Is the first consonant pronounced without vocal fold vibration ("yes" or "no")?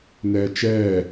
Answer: no